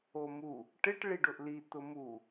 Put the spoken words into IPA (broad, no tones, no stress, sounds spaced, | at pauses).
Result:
o m u | ʈ ɪ ʈ ɭ i ɖ ʊ ʔ l i t̪ ʊ m u